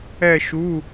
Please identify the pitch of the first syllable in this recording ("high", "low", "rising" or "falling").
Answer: falling